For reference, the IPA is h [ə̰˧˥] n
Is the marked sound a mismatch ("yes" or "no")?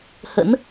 no